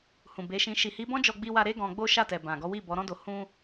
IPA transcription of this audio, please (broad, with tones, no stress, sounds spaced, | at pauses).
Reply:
h ũ˨ b e˨˦ ʃ ĩ˧ ʃ i˨ h i˨˦ b ɔ̃˦ d͡ʒ ɔ˧ ɡ͡b i˧ w a˧ ɾ e˦ ɡ ɔ̃˧ ɡ͡b o˦ ʃ a˦˨ t ɛ˨ b ã˨ ɡ ɔ˨˦ w i˦˨ b ɔ˨˦ ɾ ɔ̃˦ d o˧ h ũ˦